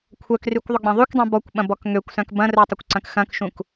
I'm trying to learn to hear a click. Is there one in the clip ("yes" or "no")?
yes